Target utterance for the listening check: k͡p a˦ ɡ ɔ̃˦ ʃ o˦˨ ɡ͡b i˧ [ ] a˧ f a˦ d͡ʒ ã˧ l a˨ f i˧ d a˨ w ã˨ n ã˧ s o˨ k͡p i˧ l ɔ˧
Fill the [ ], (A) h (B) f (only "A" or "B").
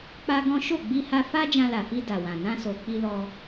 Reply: A